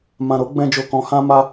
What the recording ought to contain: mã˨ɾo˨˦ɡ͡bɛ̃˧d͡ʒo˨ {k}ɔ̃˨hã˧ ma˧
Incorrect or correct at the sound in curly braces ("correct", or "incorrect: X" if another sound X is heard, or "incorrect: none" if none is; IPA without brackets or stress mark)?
correct